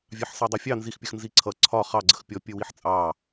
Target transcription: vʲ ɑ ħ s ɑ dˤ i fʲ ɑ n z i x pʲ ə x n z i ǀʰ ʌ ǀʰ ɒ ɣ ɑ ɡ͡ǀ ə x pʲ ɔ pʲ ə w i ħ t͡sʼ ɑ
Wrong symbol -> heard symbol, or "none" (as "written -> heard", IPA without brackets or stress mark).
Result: ɣ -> χ